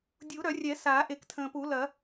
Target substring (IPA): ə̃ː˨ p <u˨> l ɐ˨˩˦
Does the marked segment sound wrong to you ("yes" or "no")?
yes